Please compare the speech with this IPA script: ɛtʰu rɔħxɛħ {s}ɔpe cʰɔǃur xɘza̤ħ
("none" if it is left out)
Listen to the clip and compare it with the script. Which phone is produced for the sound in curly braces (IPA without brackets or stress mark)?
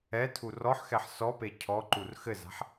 s